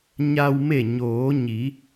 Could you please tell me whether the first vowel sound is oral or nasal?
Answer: oral